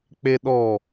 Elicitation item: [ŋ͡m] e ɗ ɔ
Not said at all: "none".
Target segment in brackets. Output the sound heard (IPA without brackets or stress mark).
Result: k͡p